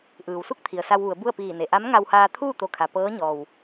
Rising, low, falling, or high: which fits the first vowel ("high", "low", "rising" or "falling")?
low